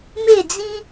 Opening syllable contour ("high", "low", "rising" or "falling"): falling